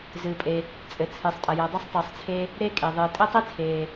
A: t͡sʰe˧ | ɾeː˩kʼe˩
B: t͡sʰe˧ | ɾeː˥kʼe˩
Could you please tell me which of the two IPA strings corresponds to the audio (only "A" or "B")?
B